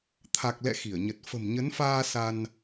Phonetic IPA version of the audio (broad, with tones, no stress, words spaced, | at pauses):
t̪ʰa˨˩k̚lɛ̰˧˨ xi˧˩ə̯ɲə˨˩t̚ fə̤˨˩mɲə˨˦nfaː˧ sa˧n